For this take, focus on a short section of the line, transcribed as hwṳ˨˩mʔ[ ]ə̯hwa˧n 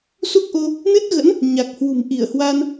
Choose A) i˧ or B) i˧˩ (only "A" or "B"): B